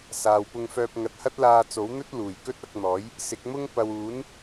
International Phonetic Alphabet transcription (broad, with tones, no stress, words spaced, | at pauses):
saː˨wpʊ˧ŋfœː˧p̚ ŋɐ˨t̚hɐ˥t̚laː˧t͡so˨˥w n̪ɵ˥t̚luː˨˩j kɵ˥t̚ɐ˧k̚n̪ɔː˨˥j | sɪ˨˥k̚mʊ˥ŋ pɐ˨w uː˨˥n